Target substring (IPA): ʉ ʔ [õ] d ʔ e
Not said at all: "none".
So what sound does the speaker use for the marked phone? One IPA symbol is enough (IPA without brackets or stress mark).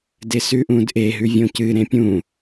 ũ